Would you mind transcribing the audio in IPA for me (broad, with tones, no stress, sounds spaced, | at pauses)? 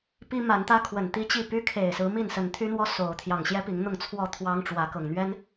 p i˦ m a˨˦ n t̪ ä˦ kʰ w ə˨˩ n t̪ i˦ t͡ɕ i˥˨ p y˦ kʰ e˨˩ ɪ̯ s ɹ̩˨˦ m i˥˨ n s ə˨˦ n t̪ʰ y˦ n̪ w ɔ˦ s o˨˦ ʊ̯ t̪ʰ j ɑ˨˩ ŋ ɕ j ɛ˦ p i˨˦ ŋ n̪ ʊ˥˨ ŋ t͡sʰ w ɔ˥˨ t̪ʰ w ɑ˦ ŋ ʈ͡ʂ w ä˨˦ k ɤ˨˩ ŋ n̪ ɥ ɛ˦ n